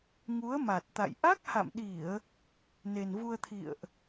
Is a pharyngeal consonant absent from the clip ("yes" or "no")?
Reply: yes